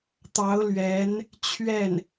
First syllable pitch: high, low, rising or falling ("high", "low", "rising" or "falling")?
rising